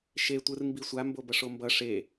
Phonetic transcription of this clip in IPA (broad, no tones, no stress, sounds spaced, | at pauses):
ʃ e tʷ ɯ r m b i sʷ a m b o b ʌ ʂ o m b ʌ ʂ e